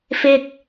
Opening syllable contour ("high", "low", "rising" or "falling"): high